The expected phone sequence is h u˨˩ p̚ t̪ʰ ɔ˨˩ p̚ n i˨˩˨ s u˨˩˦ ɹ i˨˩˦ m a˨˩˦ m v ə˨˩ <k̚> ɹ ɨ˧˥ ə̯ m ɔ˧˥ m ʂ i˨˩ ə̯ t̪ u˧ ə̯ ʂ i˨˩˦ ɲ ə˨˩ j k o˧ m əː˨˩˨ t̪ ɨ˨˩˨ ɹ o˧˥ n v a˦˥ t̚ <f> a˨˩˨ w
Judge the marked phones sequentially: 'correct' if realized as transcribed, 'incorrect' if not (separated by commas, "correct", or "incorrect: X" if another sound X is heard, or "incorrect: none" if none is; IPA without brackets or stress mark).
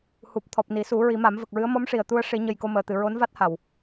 correct, incorrect: h